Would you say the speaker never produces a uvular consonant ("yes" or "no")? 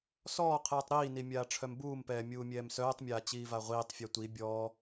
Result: no